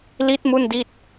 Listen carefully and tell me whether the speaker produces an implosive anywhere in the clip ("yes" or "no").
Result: no